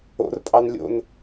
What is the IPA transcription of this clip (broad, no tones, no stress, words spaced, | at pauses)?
o̰rpʼɑn lʲo̰n